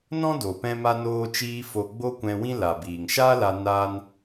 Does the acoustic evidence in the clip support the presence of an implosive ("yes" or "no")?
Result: no